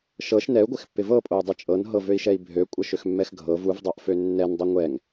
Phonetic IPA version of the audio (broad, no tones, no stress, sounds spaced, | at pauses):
ʃ ɤ ʃ n ɛ u̯ ɡʷ ɪ x pː ɪ v ɤ pʼ o u̯ dˤ ɪ t͡ʃʼ ɤ n ɦ ɤ v ø i̯ ʃ ɛ i̯ bʱ ø kʷʼ ɤ ʃ ø x mː ɛ x ɡʱ ɤ v u v dˤ ɤ ʔ f ø nː ɛ n dˤ ø ŋʷ ɛ ŋ